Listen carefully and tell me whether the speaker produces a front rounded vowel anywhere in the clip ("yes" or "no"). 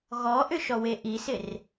yes